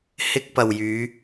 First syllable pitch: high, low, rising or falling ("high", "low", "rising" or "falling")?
high